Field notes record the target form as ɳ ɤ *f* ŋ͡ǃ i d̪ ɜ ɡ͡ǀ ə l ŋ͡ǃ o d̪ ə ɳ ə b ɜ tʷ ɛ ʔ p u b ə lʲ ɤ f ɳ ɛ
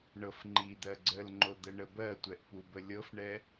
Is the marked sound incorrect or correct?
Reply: correct